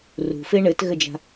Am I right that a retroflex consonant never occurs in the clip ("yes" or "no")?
no